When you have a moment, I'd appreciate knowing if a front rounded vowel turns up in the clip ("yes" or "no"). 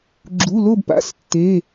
no